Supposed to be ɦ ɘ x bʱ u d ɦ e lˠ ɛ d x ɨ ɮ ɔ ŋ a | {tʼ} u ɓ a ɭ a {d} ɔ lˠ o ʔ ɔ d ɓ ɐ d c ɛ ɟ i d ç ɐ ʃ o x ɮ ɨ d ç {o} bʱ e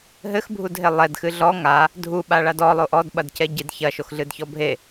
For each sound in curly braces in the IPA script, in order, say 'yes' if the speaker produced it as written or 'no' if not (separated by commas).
no, yes, no